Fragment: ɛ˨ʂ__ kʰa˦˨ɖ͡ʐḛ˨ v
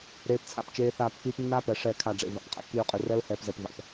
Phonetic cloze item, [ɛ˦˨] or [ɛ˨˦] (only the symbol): ɛ˦˨